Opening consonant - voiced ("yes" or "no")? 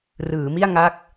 yes